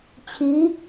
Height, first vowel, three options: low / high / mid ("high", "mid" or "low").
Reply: high